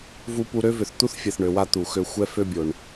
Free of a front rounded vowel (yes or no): no